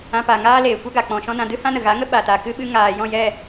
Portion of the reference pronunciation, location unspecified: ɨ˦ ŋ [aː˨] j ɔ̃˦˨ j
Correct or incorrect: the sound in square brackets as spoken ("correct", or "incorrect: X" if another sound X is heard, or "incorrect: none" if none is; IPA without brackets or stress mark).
correct